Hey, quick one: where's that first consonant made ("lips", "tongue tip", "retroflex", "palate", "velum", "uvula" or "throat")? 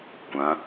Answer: velum